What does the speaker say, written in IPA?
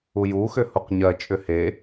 u j u x ʏ h u q ɲ ɜ t͡ʃʼ ʏ h e

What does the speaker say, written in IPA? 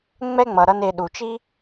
ŋ͡m ɛ˦ ŋ͡m ʌ˨ ɾ ʌ˧ n e˨ ɗ u˨ t͡ʃ i˦

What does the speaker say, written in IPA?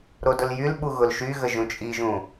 ɾ o d ʊ l j y l ɓ u ɣ ʊ l ʃ y ɣ ə ʒ ũ t͡ʃʼ i ʒ ũ

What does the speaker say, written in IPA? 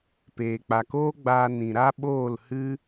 p eː˨ k͡p a˨ k oː˦ ɡ͡b aː˧ n ĩ˨ ɾ a˦ ɓ oː˦˨ l h ɨ˦

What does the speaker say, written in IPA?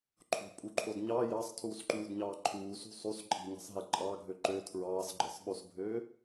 ǃʰ o̤ pʼ u ǃʰ o d ɲ ɑ j ɑ sˤ tʰ uː s ǃ uː d ɲ ɑː ǃʰ uː s ṳ sˤ u s ǃʼ i̤ ɲ ɑ̤ sˤ ɦ e ǃʼ ɑ ɡʱ ø ǃ ø tʰ ɹ ɑː s ɡ͡ǃ ɯ sˤ ɓ o s bʱ øː

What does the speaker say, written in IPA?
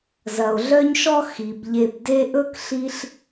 z ɐ˩ o̯ ɮ œ˦ ɲ ʃ ɔ˦ x i˩ b ʎ e˨ b d e˦ ʔ ɵ˥ k ɬ i˦ ɬ

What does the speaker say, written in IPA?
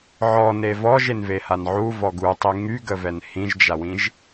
ʕ ɔ n e v ɔ ʒ e n v e h a n ʕ u v ɔ ɡ u tˤ i ŋ y ɡ ə v ɛ n h ĩ ʒ d͡ʒ a w ĩ ʒ

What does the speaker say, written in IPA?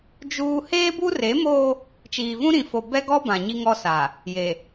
d͡ʒ uː˦ h eː˦ b u˦ r e˨˦ m oː˦ | t͡ʃ iː˨ v ũ˦ ɾ ĩ˨ f o˨ b ɛ˦ ɡ ɔ˦ b ã˨ ɲ i˦ ŋ ɔ˦ s a˨ | j e˨

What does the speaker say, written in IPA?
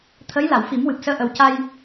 t̪ʰ ə˧˥ j l a˨˩˨ w f i˨˩˦ m w ɨ˨˩ p̚ s əː˧ ʔ ə˨˩ w c a˧ j

